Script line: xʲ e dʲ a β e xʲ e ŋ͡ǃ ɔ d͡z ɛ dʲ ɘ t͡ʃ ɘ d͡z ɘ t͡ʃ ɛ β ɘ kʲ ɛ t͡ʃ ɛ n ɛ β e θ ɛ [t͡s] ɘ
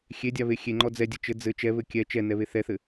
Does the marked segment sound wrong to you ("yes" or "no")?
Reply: yes